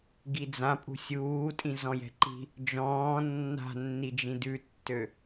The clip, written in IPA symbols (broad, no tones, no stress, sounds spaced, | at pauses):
ɡ i d͡z ã pʼ ṳ sʲ uː tʼ ĩ z ɔ̃ j ɛ̤ ǃ i̤ | d͡ʒ ɔ̃ː nː a̤ nː i d͡ʒ ĩ d ʉ tː ø